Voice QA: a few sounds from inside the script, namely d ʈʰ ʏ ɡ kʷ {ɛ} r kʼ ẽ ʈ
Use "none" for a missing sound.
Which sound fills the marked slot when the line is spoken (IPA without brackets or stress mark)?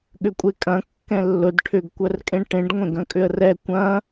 œ